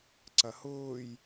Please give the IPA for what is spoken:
ǀɐhʊːj

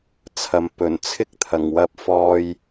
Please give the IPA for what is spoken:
t͡sʰɐ˨m pɵ˨˩n t͡sʰɪ˥k̚t̪ʰɐ˨˩ŋwɐ˧p̚ fɔː˧j

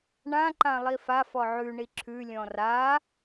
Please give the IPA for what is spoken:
ɳã ǃãlˠifa fɔʕʉ ɳiǁʰʉ lʲɔ̃ra

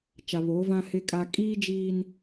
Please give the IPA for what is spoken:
t͡ʃa˨βoː˨˦vã˦ hɪ˦kʼa˦ kʼiː˦ d͡ʒiː˦n

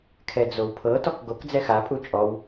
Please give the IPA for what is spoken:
kʰɛd͡zowpʰɤ tɔkɡok d͡zɛxa pʼut͡ʃʼɔw

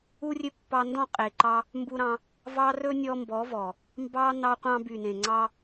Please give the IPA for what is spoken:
u˧rʲø˧ pːɑ˧ndɔ̃˦˨ qʼe˨ǃɑ˧ | mbu˧ɾɑ̃˧ | vɑ˦ rɵ˦nʲɔ˧mbɔ˨˦vɔ˨ | mbɑ˦ nɑ˦qʷɑ̃˦ by˨nẽ˨ŋ͡ǀɑ˧

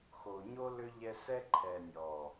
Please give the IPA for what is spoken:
xo˨ ɲo˦ lʏ˦ ʎɛ˦ sɛ˦ ǃʰɛ˨nʲɔ˨

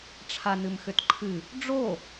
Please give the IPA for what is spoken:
ʈ͡ʂʰanɨmxʏtǃʰɨ | ɖ͡ʐo

